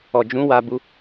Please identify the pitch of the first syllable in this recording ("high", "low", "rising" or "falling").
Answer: low